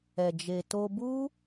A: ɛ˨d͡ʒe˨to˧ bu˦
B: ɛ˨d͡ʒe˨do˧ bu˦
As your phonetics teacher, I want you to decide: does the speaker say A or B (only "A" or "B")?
A